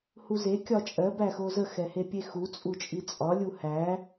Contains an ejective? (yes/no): yes